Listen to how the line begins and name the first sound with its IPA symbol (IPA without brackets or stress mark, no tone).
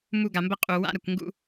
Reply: m